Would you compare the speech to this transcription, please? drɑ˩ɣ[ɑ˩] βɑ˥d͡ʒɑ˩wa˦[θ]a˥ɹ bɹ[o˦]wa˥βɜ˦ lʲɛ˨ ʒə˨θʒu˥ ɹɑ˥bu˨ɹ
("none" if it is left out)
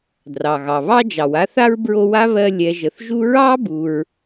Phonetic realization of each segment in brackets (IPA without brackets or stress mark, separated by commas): ɑ˩, θ, o˦